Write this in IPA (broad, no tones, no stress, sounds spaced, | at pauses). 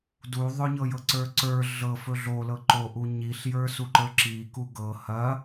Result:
d u ðˤ ɵ ɲ ɤ j ɤ ǀ ə˞ ǀ ə˞ ɮ ɤ f ɵ ɮ o l ɤ ǃ o ʔ u ɲ i ɬ j ə˞ s u ǃ ə˞ ǁ i k u ɡ ɤ h ɐ